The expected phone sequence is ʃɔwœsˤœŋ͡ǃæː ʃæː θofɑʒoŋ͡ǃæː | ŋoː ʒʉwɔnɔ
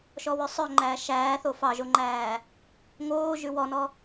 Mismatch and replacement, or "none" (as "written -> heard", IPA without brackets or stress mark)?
none